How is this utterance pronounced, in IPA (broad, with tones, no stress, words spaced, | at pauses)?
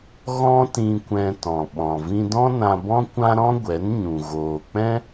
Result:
ɣɔ̃˦tĩ˧kʷɛ̃˧ tɔ̃˨ɓɔ̃˨ vĩ˧dɔ̃˦nã˧bɔ̃˦ kʷã˦ ɾɔ̃˦ɡʷɛ˨˦n ɲũ˨ ɣoː˨k͡pɛ̃˦